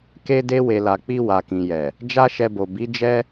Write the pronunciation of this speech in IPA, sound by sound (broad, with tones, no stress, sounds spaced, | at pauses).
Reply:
k e˧ d e˧ w e˨ l a˨ k͡p i˧ w a˨ k ĩ˨ j ɛ˨ | d͡ʒ a˦ ʃ ɛ˧ b o˨ b i˨˦ d͡ʒ ɛ˦